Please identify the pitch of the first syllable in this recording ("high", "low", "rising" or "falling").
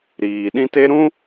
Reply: low